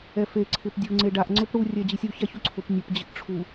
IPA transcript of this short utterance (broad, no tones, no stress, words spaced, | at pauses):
ɛfe ǀʰɪpdʲu ŋ͡ǀeɖaʔ ŋ͡ǀʊpɽu rʲɛd͡ʑisʲu çaçuǀʰʊp nʲʊp d͡ʑɪʔʈ͡ʂʰu